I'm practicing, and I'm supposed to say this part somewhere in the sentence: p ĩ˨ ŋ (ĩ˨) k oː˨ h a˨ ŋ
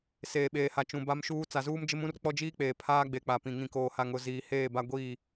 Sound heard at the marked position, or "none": ĩ˨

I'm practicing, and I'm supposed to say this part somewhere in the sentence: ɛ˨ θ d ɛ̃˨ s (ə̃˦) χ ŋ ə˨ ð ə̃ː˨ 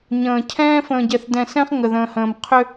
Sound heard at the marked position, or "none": ɛ̃˦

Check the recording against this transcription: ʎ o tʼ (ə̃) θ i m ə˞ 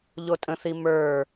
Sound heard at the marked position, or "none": ə̃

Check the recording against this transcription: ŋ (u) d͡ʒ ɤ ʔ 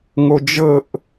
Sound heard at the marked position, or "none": o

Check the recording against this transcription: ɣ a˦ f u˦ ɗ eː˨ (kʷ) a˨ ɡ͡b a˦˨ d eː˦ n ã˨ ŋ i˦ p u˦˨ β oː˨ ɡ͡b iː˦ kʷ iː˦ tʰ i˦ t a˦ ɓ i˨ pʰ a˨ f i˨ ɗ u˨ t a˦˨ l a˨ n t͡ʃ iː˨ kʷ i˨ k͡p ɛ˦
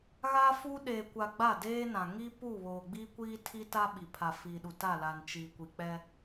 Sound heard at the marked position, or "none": kʷ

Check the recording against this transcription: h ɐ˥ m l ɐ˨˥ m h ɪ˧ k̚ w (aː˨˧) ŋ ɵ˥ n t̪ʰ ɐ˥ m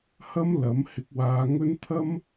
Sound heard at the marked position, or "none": aː˨˧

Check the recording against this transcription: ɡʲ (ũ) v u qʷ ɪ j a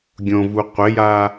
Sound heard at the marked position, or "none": õ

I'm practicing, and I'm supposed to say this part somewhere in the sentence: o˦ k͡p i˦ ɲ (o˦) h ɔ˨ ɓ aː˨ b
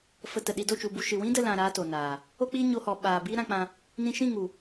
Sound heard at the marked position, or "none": o˧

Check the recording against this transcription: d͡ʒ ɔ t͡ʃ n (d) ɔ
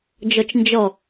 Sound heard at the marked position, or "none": d͡ʒ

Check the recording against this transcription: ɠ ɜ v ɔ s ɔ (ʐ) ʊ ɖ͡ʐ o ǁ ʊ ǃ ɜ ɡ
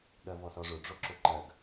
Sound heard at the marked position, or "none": ʐ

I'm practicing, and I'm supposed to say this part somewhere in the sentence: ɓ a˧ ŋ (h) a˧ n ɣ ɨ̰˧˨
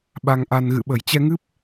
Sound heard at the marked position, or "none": ʔ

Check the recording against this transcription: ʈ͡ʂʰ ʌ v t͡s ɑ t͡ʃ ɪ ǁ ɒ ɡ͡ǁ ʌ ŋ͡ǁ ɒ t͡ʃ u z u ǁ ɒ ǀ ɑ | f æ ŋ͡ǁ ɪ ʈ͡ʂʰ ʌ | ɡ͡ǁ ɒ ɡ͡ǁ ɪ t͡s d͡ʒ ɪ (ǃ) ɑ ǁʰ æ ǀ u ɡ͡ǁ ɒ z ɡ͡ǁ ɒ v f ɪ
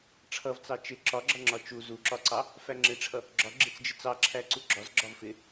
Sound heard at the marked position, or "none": t͡s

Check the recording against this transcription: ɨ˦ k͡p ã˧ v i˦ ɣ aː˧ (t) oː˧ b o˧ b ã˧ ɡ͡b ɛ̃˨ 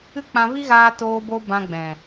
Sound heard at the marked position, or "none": t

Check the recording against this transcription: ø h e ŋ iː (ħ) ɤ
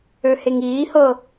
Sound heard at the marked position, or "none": h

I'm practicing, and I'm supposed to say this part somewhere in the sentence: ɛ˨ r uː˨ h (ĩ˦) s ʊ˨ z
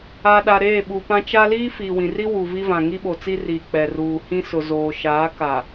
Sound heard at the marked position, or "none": ĩ˦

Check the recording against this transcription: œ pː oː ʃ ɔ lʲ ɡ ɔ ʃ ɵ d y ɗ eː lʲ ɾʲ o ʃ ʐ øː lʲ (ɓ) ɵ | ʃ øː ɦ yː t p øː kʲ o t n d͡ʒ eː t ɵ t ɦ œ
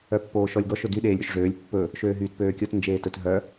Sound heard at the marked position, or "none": pː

